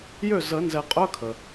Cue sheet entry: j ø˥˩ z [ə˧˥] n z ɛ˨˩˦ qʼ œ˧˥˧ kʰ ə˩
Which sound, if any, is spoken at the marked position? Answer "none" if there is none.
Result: ə˨˩˦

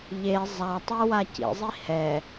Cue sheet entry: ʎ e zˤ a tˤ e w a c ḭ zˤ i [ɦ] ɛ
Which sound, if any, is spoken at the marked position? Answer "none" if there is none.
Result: h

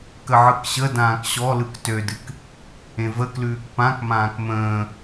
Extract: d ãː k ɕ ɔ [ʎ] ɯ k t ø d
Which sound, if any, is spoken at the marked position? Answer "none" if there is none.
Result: l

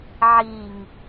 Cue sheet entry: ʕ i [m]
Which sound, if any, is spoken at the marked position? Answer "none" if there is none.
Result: ŋ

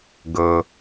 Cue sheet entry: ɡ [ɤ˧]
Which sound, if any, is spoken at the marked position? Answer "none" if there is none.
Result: ɤ˧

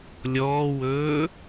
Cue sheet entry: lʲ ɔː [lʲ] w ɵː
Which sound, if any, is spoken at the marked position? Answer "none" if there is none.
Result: none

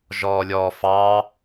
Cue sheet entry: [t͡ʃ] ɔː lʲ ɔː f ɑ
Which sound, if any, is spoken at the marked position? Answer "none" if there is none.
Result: ʒ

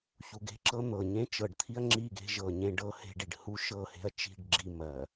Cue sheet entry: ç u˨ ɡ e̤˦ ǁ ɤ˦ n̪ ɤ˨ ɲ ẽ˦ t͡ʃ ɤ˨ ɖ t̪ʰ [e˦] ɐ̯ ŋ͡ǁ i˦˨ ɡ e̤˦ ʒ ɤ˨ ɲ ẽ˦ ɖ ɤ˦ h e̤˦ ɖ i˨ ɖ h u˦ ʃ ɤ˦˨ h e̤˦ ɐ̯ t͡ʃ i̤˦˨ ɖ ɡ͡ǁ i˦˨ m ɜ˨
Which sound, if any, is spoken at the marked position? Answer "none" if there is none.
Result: i˦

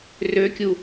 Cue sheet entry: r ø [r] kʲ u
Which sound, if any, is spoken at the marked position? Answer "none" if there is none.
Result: none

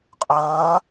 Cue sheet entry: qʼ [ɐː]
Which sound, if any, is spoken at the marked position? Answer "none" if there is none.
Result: ɐː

